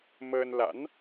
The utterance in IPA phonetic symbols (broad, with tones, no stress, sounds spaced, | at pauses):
m əː˧ n l a̰˧˥ n